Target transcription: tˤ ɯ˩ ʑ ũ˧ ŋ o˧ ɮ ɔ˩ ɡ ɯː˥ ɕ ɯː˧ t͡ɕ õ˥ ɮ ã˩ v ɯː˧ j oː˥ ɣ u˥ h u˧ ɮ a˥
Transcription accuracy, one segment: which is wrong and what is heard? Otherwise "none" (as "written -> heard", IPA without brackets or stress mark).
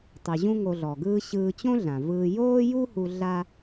ɣ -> j